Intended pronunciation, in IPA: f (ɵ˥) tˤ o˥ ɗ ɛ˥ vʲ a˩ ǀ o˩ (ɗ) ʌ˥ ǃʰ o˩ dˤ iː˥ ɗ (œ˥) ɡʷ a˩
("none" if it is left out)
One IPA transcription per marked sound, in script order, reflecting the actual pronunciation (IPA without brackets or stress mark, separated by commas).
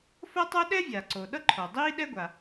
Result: o˥, ɗ, ɛ˥